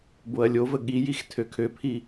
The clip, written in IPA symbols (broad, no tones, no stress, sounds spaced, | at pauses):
b o ɐ̯ lʲ o v ə ɠ i j i x tʰ ø kʰ ø pʰ i